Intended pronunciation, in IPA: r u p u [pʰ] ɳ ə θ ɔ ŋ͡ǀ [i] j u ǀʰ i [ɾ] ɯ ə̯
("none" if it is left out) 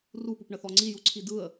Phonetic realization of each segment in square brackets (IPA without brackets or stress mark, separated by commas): p, i, d